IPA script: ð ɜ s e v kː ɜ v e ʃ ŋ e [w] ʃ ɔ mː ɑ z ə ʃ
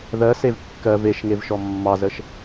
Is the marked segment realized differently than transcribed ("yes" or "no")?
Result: yes